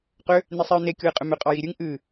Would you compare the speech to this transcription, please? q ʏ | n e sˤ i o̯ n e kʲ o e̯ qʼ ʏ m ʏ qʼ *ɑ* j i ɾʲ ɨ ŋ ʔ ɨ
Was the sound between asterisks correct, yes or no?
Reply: yes